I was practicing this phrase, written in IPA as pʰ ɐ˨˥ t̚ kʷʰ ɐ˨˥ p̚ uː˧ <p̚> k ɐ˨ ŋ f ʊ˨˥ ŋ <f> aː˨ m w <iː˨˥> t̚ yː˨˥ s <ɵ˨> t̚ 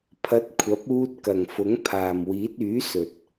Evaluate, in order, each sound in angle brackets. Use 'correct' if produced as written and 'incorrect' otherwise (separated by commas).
incorrect, incorrect, correct, correct